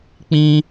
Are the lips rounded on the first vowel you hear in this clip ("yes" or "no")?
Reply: no